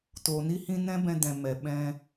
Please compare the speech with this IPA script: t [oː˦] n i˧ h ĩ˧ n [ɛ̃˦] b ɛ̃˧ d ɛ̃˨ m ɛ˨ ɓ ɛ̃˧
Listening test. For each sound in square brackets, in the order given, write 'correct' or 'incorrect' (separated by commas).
incorrect, correct